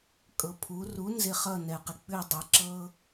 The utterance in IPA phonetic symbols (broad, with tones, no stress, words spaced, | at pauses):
kʼɤ˨pʰu˩˥ ru˩˥ nzɪ˥˩χʌ˥˩nɛ˨˩˦qɪ˨ k͡pʉ˥˩dˤi˩˥ ǁɤ˦